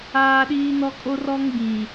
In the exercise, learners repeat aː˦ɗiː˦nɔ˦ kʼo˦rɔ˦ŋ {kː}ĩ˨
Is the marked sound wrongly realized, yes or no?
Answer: yes